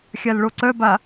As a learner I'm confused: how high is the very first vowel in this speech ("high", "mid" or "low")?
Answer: low